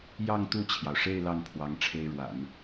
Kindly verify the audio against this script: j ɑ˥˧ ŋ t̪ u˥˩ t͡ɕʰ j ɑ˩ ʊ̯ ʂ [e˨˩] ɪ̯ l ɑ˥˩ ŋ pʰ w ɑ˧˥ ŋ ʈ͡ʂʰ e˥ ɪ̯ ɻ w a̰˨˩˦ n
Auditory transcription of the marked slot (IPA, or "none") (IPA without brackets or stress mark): e˥˧